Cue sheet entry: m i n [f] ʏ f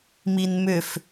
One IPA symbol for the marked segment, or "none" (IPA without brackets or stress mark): m